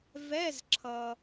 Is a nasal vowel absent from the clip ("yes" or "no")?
yes